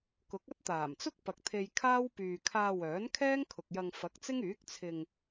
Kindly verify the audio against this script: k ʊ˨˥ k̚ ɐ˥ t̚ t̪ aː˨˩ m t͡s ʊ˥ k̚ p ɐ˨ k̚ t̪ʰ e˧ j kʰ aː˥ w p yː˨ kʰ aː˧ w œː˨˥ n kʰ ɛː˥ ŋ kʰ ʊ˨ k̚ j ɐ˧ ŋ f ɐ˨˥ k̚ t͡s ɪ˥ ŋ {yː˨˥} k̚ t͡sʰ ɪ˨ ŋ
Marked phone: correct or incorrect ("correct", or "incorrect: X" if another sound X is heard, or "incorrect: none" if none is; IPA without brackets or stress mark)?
correct